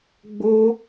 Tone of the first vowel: high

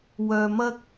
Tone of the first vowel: low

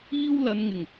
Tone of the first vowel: high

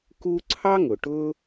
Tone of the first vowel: high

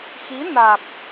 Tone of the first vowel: rising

